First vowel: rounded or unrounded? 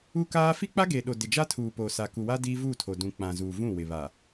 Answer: rounded